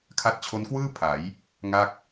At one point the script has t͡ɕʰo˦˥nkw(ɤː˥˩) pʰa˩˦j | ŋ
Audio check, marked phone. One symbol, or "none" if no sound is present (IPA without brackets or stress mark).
ɯː˥˩